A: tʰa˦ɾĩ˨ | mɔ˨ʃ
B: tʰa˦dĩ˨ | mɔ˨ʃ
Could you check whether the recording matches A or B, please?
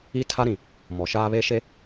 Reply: A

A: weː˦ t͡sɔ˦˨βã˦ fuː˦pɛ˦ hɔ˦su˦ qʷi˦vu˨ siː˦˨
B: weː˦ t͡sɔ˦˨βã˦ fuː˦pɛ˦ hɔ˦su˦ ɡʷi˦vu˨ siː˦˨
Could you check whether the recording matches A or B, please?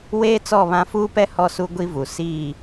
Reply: B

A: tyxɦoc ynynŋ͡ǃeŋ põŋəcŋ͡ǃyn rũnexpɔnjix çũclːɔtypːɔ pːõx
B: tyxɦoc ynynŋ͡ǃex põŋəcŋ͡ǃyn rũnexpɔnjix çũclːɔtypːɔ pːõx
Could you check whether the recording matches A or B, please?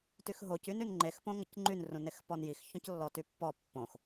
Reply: B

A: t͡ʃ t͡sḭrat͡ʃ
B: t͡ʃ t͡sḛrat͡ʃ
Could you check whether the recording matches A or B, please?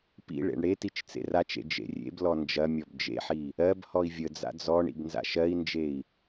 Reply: B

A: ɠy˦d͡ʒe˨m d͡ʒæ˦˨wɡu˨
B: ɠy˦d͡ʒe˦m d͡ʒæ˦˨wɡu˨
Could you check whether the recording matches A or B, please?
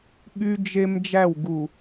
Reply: B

